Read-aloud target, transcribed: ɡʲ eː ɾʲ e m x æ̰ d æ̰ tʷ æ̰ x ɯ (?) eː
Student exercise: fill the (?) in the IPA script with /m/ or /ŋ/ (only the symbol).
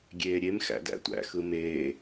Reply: m